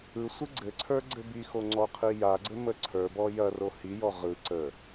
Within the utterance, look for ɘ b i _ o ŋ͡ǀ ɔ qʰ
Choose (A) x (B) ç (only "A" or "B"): A